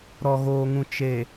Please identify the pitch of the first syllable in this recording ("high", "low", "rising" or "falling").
low